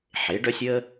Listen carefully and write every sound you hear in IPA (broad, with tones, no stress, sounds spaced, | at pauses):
ħ e˨˥ ɖ œ˥ sʲ əː˥